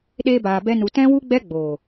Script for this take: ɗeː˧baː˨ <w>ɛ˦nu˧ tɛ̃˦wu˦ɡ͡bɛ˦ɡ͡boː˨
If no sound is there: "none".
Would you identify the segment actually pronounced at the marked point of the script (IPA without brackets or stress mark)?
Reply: b